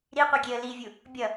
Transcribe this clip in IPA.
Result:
ɾiqʷiɡʲeə̯ livʲu | bʲʌ

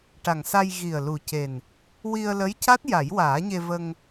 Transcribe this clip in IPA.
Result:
ʈa˨˩ŋsa˧j ɣi˨˩ə̯ lu˨˩ce˨˩n | wi˧ə̯lə˧˥jca˦˥t̚ ja˨˩˦jwaː˨˩˦ɲe˧və˧ŋ

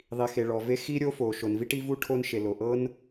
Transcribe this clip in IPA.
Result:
ðˤi˩xe˩ɭɔ˩ve˥ xi˥ɾʲo˥fo˩ ʃo˩nvi˥ʈi˥vu˥ ʈʰo˥nʃe˩lo˩ ʔɤ˥n

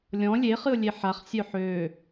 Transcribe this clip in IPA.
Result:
lʲɔ̃ lʲeχɨʊ̯ lʲeħaχ sʲœħø

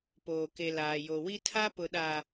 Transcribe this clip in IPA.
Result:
poː˨ke˨ laː˨jo˨ wi˦tʰa˦pʊ˨ɗa˨

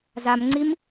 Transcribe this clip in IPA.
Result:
zamŋ͡ǀim

